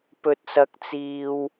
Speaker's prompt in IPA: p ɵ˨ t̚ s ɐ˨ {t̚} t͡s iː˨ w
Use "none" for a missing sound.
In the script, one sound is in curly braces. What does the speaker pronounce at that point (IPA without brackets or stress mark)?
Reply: k̚